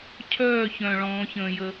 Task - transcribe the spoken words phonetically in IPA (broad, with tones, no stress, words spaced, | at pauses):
cʰœː˦˨çœ̃˨ ɭɔ̃ː˨˦çə̃ː˨jə˦